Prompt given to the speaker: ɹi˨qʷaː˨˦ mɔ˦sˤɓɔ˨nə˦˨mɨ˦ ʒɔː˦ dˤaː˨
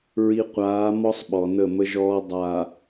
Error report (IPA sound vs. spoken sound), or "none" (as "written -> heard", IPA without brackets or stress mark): ɨ˦ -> ə˦